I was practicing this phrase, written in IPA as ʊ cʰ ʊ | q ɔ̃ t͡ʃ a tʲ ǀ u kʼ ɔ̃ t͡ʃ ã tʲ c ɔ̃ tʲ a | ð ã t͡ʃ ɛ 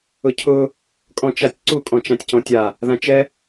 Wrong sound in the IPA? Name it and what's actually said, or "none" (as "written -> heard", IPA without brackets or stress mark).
q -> kʼ